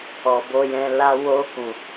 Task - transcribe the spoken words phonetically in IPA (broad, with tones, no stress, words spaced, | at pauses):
ɔ˨ bo˧jɛ̃˧la˦ wo˧ kũ˨